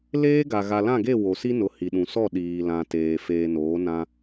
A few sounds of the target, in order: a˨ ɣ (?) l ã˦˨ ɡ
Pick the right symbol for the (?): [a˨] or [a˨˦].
a˨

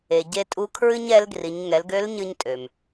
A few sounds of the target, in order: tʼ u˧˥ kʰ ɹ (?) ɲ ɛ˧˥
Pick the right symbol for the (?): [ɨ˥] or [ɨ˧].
ɨ˥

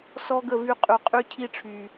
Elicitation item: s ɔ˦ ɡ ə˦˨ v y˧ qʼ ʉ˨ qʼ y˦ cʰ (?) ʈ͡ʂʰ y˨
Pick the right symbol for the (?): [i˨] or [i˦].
i˦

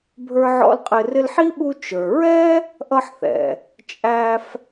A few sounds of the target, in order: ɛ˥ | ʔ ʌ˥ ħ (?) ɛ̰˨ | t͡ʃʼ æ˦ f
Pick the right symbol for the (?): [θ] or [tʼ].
θ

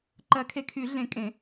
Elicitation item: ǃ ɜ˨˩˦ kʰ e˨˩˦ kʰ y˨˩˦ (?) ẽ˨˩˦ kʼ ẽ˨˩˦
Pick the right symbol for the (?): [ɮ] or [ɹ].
ɮ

